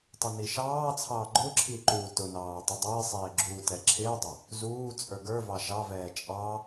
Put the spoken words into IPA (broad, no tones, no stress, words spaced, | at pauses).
tˤɪniʃɑːt͡sʰɑː ɡ͡ǃʊǁʰi ǃuːtʊnɑː tˤɪdˤɪːsˤɪː ɡ͡ǁuːtɛǁʰɪːdˤʊ | zuː t͡sʼə˞ɡə˞vɑ ʃɑvɛː t͡ʃʼɑ